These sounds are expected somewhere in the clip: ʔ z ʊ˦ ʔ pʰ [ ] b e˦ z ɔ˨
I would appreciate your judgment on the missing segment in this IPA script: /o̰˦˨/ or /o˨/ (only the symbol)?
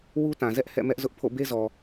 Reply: o̰˦˨